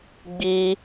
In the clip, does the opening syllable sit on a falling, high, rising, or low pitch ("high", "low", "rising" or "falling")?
high